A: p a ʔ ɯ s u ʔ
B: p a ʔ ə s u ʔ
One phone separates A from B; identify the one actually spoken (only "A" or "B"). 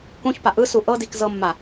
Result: A